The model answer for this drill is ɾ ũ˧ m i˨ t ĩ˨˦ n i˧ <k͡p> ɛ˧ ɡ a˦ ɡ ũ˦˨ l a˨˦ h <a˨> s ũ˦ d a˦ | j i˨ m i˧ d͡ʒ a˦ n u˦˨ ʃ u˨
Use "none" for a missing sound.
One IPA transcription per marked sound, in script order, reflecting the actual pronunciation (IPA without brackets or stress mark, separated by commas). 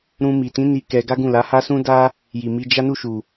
k, a˦